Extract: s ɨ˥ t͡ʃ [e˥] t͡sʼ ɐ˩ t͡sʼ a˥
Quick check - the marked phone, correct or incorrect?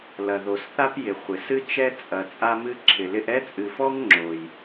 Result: incorrect